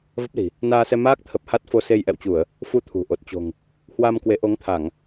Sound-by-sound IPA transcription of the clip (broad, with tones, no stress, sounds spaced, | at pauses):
v ə˦˥ p̚ l i̤˨˩ | n aː˧ s ɛ˧ m aː˦˥ k̚ t̪ʰ ə˨˩ p̚ h a˦˥ t̚ f o˧ s e˧ j ʔ ɛ̰˧˨ w t͡ɕ u˧˩˨ ə̯ | f u˧ t̪ʰ ṳ˨˩ ʔ o˨˩ t̚ t͡ɕ o̤˨˩ ŋ | h w a˧ m k w e˨˦ ʔ o˨˦ ŋ t̪ʰ a˧˩˨ ŋ